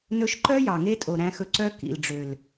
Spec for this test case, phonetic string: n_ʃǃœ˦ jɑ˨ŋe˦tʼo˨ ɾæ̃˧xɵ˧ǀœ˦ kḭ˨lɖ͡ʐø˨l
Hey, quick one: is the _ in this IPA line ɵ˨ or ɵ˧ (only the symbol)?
ɵ˧